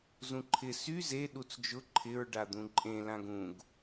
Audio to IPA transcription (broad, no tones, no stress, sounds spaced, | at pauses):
z ũ ǃʰ ɪ s y z e ɗ u t͡s d͡ʒ ʊ ǃʰ ɪ ɹ ɖ a d̪ ũ ǃʼ ẽ l ã ɡ ũ ɡ